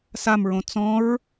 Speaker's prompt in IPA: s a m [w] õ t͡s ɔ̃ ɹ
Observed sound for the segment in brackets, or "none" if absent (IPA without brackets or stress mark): ɹ